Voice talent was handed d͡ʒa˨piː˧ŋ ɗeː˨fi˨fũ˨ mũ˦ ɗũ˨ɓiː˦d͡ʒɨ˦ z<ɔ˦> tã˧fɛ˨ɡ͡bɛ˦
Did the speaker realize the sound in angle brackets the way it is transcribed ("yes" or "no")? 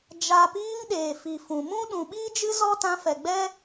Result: yes